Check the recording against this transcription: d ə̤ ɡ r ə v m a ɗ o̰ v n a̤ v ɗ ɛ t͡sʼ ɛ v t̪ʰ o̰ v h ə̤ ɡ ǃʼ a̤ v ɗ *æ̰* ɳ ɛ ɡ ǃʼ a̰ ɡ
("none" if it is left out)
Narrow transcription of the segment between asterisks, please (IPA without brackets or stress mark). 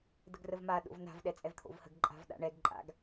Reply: a̰